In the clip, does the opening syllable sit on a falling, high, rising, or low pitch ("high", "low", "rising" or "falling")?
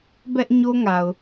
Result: high